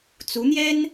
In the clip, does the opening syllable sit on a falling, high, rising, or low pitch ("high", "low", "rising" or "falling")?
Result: rising